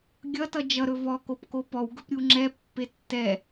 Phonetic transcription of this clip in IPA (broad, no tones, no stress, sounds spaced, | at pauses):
ɡʲ ʌ t ʌ d͡ʒ ʌ ɾ ɵ v ɔ k o p k o p ɔ w ɡ ɵ p ɾʲ u ŋ͡ǁ ɛ pː e tː ɛ